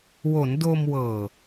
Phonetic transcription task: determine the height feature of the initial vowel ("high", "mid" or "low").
mid